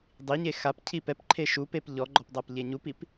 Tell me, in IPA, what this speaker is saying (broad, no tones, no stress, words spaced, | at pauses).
dˤiɲe xap cʰipɛpǃʰe ʃupep ʎɔɡ͡ǃɔp dˤapʎeɲupip